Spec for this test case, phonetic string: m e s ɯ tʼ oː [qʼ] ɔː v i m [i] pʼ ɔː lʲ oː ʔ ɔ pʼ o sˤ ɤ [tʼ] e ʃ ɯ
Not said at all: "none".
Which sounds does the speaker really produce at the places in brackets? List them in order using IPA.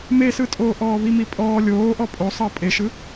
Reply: ʔ, i, pʼ

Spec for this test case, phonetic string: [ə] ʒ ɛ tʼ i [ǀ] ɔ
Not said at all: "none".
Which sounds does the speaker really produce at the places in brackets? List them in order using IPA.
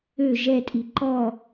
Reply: ø, ǃ

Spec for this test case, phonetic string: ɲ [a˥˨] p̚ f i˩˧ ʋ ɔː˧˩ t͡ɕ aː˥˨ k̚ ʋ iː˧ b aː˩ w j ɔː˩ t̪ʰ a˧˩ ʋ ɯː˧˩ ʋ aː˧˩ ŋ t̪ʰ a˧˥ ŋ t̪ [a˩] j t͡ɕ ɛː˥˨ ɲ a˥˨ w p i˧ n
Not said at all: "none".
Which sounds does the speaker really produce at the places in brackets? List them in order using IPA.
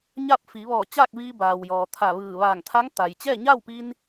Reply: a˥˨, a˩

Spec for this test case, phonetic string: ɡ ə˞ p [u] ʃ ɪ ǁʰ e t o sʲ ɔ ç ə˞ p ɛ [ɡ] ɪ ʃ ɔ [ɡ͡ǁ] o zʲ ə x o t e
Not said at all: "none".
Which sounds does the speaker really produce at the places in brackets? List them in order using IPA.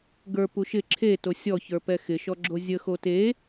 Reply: u, x, ɡ͡ǁ

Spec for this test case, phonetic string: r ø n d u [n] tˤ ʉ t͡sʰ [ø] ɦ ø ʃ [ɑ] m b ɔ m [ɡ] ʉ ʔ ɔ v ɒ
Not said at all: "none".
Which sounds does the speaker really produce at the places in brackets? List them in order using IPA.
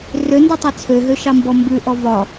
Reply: none, ø, ɑ, b

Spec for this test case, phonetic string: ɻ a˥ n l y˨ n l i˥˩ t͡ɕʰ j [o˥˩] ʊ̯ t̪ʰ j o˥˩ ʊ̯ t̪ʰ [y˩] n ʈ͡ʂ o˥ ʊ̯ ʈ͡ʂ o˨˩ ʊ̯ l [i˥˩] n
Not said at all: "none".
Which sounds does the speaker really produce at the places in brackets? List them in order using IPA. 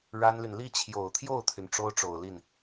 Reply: o˨˩, y˩, i˥˩

